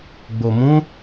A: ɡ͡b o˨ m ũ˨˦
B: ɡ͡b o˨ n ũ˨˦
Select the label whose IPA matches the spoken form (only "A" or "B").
A